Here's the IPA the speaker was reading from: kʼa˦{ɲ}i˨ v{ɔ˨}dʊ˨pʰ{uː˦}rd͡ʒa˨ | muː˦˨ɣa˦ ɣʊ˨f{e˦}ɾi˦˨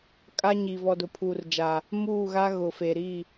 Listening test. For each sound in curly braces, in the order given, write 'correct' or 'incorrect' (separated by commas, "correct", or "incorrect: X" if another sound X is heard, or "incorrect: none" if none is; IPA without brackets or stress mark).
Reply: correct, correct, incorrect: uː˨, incorrect: e˨